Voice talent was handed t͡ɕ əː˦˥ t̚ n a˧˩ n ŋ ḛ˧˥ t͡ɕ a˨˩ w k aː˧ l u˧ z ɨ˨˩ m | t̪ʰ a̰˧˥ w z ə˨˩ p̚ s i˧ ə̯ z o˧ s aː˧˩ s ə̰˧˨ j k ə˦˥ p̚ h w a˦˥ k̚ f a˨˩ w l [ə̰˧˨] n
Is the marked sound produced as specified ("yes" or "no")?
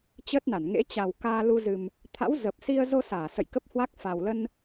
no